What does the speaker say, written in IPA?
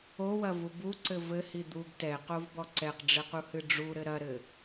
o w ɐ v u b u ǀ ɘ v ɘ h i d̪ u ɡ t ɛ q o v b ɔ ǀ ɛ q ɖ͡ʐ ɘ q u h ɨ ɖ͡ʐ u ɾ ɘ ɾ ɐ ɾ ɘ

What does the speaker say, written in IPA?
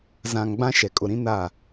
z ã˨ ŋ ɡ͡b ã˦ ʃ ɛ˨ kʼ ʊ˨ ɾ ĩ˦ n a˦˨

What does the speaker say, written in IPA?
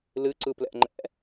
l ɨ ǀ ɯ p l ɛ̰ ŋ͡ǃ ɛ̰

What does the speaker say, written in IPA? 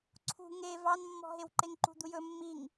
ǀʰ ṳ ŋ e v ɑ n mː ɔ̤ ɦ e w ǃ e ŋ ǃ ṳ d̪ u j ɵ mː i ŋ

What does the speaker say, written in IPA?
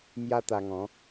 m j a˦ t̪ a˧ ŋ ɔ̃˨˦

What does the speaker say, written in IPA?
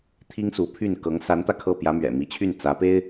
t̪ʰ i˥ ŋ s u˧˥ pʰ y˥˩ n k ɤ˧˥ ŋ s a˧˥ n t̪ ä˧ kʰ ɤ˥˩ p j ä˧˥ m ɥ ɛ̰˨˩ m i˧˥ t͡ɕʰ y˥˩ n t͡s ä˧˥ p e˥ ɪ̯

